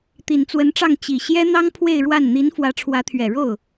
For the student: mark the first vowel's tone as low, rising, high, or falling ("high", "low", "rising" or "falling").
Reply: low